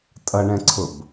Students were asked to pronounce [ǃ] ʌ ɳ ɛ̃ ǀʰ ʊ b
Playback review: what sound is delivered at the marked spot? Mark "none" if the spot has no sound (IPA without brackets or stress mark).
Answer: tʼ